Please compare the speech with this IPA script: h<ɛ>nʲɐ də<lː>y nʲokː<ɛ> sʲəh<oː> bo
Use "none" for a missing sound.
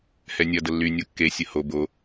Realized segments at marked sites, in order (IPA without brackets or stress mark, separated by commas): ɛ, lː, e, o